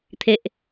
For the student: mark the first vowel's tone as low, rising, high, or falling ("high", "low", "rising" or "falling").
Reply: low